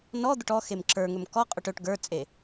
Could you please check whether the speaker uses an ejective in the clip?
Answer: yes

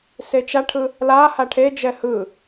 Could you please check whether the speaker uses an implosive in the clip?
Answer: no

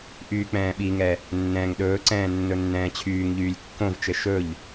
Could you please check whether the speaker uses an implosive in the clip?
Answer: yes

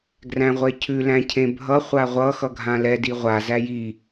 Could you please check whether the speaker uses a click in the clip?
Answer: no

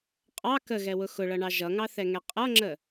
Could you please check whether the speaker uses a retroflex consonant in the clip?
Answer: yes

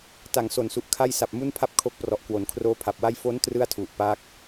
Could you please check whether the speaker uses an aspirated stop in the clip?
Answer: yes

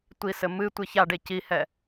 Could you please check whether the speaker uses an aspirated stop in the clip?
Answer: no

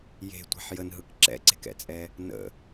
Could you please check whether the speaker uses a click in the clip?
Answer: yes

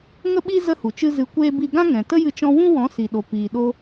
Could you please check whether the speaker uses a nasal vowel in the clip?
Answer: yes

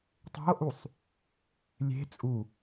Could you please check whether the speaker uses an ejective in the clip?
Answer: yes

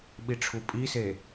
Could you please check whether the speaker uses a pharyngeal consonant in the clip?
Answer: no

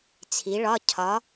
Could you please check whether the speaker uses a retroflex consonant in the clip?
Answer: yes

